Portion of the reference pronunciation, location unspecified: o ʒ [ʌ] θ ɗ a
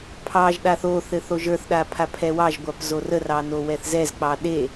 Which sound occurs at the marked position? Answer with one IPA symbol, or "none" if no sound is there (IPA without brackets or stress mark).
ə˞